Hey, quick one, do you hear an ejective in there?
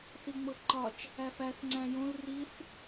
no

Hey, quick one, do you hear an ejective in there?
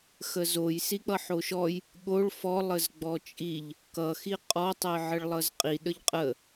yes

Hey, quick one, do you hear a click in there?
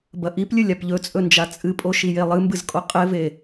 no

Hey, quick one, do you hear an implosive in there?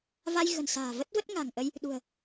yes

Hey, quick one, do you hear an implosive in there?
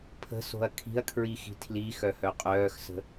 no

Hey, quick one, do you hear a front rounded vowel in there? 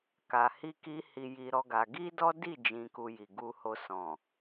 no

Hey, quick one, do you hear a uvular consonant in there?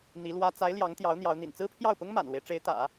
no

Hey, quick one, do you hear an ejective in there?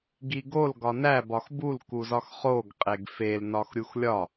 yes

